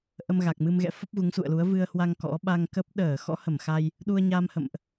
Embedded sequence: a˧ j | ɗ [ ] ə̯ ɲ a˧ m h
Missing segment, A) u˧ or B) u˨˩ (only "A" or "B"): A